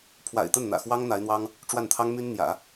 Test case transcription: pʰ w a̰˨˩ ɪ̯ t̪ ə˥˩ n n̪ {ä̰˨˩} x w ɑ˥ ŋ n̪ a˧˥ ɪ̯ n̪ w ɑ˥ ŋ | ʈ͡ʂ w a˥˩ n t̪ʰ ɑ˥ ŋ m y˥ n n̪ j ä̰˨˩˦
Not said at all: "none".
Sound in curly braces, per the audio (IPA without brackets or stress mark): ä̰˨˩